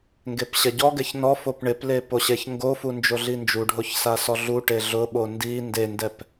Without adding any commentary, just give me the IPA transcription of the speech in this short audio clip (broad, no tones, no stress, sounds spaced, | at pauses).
ŋ ɡ e p ɕ ɛ ɟ ɔ ɡ ɛ ç n ɔ f o p ɳ ɪ p l e p o ɕ e ç ŋ ɡ o f u n d͡ʒ o ɮ i n d͡ʒ u ɖʱ o ç s a s ɔ ɮ u ʈ e ɮ ʊ ɓ o n d i n d e n d ɛ p